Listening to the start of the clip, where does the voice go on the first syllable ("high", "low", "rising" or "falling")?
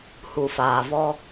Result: low